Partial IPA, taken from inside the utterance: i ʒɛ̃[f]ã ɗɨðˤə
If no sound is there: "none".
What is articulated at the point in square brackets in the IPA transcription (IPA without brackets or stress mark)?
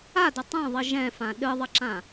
f